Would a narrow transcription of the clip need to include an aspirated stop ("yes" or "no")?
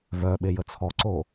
yes